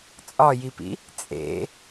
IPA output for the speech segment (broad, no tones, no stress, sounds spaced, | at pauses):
t͡sʼ ɒ j i p ḭ | t͡sʼ ḛ